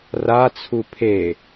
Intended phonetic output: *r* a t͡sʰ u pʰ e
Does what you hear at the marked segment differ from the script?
no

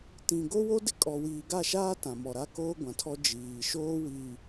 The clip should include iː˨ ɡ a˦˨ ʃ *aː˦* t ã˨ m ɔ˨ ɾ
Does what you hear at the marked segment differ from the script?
no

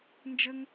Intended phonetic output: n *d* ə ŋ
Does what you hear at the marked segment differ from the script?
yes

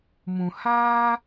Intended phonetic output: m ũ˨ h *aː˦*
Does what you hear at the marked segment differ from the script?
no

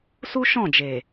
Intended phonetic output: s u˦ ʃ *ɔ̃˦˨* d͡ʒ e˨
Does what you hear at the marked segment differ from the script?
no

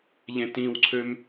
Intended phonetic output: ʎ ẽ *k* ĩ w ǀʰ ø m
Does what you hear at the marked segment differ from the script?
yes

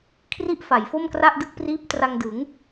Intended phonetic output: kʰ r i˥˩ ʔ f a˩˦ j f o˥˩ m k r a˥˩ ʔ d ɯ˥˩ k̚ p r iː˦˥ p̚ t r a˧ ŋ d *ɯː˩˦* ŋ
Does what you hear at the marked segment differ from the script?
yes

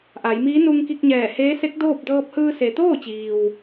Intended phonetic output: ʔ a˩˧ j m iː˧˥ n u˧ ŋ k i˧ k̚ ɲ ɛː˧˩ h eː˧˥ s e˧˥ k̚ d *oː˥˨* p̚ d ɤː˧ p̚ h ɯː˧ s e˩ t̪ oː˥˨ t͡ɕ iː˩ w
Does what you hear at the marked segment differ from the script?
no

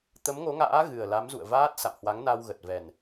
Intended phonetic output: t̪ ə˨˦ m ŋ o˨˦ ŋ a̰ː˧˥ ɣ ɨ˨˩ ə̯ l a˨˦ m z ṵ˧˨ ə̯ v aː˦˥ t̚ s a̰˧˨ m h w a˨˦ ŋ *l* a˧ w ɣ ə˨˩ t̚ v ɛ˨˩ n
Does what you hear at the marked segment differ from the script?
yes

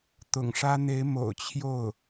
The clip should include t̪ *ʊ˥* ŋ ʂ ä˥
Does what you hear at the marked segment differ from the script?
yes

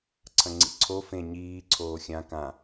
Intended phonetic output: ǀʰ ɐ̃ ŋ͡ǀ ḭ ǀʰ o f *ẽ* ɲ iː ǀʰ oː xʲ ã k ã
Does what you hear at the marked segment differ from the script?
no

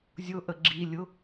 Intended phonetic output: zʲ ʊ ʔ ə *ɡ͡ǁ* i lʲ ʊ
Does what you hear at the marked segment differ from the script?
no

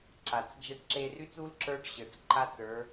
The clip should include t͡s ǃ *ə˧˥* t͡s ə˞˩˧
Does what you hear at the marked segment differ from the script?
yes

